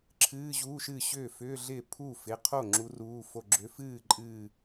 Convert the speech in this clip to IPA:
ǁʰ ɨː˧˥˧ ʑ uː˧˥˧ ʃ ɨ˥˩ ɕ ʏː˥˩ f ʏː˧˥˧ ɮ ɪː˥˩ pʰ u˥˩ f ɪ˩˧˩ qʰ o˥˩ ŋ͡ǁ u˨˦ r uː˩˧˩ f o˧˩ ɡ͡ǁ ʏ˨˦ f ɨː˥˩ ǃʼ ɨː˧˩

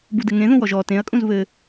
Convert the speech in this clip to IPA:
b u d ɘ ŋ ẽ ð ũ w ɔ ʒ ɔ t ẽ ɐ̯ kʼ ũ z β ɘ

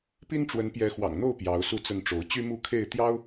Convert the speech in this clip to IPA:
p i˦ n ʈ͡ʂ w ə˨˦ n p j ɛ˨˦ x w ɑ̰˨˩ ŋ n̪ o˥˨ ʊ̯ p j ɑ˨˦ ʊ̯ s u˥˨ t͡s ə˥˨ n ʈ͡ʂ o˨˦ ʊ̯ t͡ɕ y˦ m u˥˨ kʰ e˥˨ ɪ̯ t̪ j ɑ˦ ʊ̯

